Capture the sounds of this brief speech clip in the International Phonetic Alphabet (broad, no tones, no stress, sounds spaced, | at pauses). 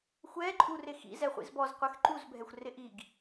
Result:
xʷ ɛ ǃʼ u r ɪ x ḭ z ɛ χʷ ḭ z b ɔ z qʷ ɛ x ǃ u z bʱ ɛ xʷ r ɪ ʔ i ɡ